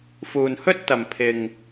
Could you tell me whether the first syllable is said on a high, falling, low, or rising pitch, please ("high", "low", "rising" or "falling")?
low